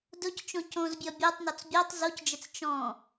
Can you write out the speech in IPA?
dʊc t͡ʃõcõzbʲɔ bʲə˞tˤnɔt͡s bʲotˤ zocd͡ʒɘt͡s t͡ʃɔ̃

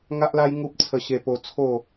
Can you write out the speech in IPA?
ŋa˦ʔla˦j ŋu˦p̚t͡sʰə˧ɕe˧po˧ t͡sʰo˥˧

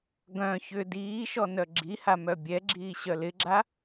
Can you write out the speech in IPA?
ɡœ̃ çʏ diːʃɔ nœɡ͡ǁiha mœbʲɛɡ͡ǁiː ɕœlɪɡ͡ǁa

